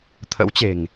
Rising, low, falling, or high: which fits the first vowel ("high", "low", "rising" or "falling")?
rising